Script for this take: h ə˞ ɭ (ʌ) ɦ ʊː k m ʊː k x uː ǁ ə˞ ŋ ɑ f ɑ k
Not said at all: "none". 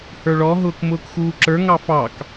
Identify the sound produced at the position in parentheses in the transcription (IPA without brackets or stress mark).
ɔ